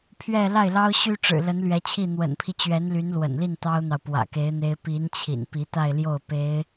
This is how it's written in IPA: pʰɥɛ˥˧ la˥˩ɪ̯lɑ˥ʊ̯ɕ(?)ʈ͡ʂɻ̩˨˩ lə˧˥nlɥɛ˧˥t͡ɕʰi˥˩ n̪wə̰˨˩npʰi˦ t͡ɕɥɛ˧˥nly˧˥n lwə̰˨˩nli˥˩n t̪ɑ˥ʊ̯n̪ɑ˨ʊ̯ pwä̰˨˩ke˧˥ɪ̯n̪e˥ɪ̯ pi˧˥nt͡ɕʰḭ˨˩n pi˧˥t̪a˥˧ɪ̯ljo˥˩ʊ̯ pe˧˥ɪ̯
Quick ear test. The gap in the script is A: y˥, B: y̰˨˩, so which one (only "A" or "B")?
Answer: A